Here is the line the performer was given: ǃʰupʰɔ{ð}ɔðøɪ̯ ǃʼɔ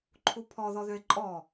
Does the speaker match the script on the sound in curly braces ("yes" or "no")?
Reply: yes